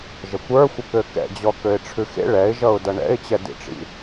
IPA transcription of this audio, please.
ʒəkʷə˞xʷəkø kɛ̰d͡ʑɔ køɪ̯ʈ͡ʂʰʉxḛ ɭɛɪ̯ʒʌʊ̯dʌ ɳɛ̰ɪ̯t͡ɕɛdḭʈ͡ʂḭ

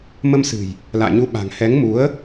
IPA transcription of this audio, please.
mə˧msɨ̤˨˩j | la̰ː˧˨ɲu˨˦ɓa̤˨˩ŋ hɛ˨˦ŋmu˨˦ə̯

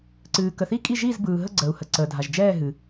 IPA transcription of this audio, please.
ǀɨː˨kə˨θi˥˧ kʼi˥˧ʒiː˥˧zbɯː˨ɦə˥˧ ɡ͡ǀəː˨u̯hə˨ǀəː˨dʱa˨ʒ d͡ʒɛː˥˧ɦɨ˨

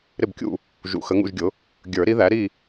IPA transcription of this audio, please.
ɾɪ˥˨bkʲṵ˥˨ | ʒṵ˨˩˦xə˨˥ ŋṵ˥˨ʒɡʲʊ˨˥ | ɡʲə˞˨˩˦ɾi˨˥ðæ˨˥ ɾi˥˨

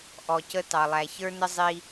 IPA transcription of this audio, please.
ʔɔ˩cə˧ tɑ˩lˠæ˩çə˞˥nə˥ zˤi˧

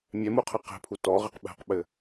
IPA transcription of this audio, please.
mʲɛmuqʰɘ qɛ̤pʰu tɔʁɘq ɓɛ̤qɓɘ

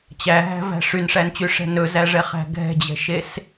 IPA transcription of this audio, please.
t͡ɕæɦæ̤væ̤ ʂynʂænt͡ɕyʂɛ̤ nɵzæʐɛχæ̤ ɡʱɛ̤d͡ʑɛ̤ʃes

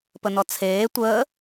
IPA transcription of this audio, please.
pənɔt͡sʰeː tʷəː

